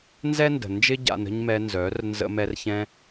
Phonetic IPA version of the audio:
n z ɛ˦ n d ə̤˨ n d͡ʒ ɪ˦ ɟ a̰˧ n ə̤˦ ɲ m ɛ˧ n z œ˨˦ r n z ə̰˧ m ɛ˧ r ç ɛ̃˧

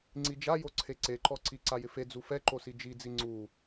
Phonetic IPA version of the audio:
ŋ͡ǀ i d͡ʒ a j o ǀʰ e ǀ e ǃ ɔ ǀ i ǀ a j ɪ f e d͡z u f ɛ ǃ o s i d͡ʒ i d͡z i ŋ͡ǀ u

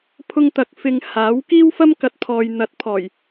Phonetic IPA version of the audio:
pʰ ʊ˧ ŋ t̪ ɐ˨ k̚ f ɪ˧ ŋ h aː˨˥ w k iː˥ w f ɐ˥ m k ɐ˨ t̚ pʰ ɔː˨ j n̪ ɐ˨˥ t̚ pʰ ɔː˨˩ j

